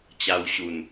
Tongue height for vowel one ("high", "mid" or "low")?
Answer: low